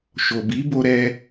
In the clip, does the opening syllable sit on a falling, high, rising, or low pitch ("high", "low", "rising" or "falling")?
low